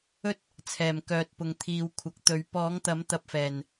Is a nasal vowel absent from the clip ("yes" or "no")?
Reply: yes